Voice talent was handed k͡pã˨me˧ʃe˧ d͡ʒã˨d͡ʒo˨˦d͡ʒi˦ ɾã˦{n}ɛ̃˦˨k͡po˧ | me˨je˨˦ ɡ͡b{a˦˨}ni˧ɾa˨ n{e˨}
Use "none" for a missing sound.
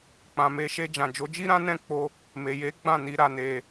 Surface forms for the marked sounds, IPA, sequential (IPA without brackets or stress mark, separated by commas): n, ã˦˨, e˨